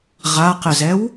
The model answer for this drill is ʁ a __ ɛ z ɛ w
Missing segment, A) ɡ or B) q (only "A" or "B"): B